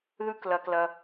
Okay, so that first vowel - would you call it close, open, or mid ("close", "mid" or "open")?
close